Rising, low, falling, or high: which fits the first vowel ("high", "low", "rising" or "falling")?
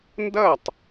falling